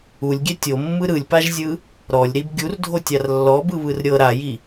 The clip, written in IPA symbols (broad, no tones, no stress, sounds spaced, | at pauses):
u lʲ ɡʲ ɛ tʲ o mː ɯ ɾ ɯ lʲ p a ʒ zʲ ɯ | ɾ ɔ lʲ ɾ i b ɡʲ u r dʱ o tʲ a r lː ɔ b ɯ β ɯ r ɾʲ ɤ ɾ a j i